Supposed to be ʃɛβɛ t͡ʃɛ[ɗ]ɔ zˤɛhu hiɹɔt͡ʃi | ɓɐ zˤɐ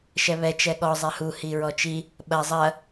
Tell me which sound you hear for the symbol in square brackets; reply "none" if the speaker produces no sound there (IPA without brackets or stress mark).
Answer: ɠ